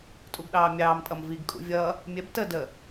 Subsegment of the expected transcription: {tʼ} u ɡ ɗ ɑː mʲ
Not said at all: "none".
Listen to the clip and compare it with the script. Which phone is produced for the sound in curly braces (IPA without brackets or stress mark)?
tʼ